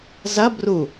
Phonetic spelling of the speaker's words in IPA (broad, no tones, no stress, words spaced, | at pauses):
zɐ bru